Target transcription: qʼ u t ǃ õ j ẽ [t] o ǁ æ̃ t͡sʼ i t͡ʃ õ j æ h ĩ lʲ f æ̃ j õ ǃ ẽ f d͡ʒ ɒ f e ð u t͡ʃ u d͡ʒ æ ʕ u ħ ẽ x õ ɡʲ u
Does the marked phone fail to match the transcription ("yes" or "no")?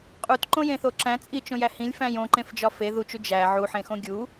yes